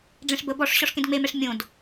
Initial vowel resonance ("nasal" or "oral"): nasal